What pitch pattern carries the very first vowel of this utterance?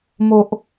low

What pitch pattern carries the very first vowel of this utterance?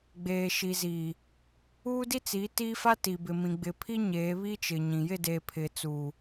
low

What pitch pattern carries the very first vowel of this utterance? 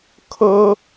high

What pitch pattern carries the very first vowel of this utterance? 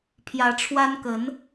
rising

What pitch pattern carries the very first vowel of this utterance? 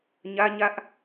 high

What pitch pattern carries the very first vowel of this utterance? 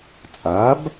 rising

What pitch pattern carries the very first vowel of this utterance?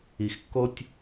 low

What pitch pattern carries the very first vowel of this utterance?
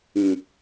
low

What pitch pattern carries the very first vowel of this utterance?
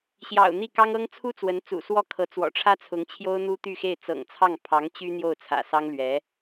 low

